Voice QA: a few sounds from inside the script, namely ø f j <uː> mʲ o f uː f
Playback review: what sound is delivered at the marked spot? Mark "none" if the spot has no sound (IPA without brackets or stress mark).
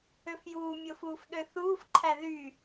uː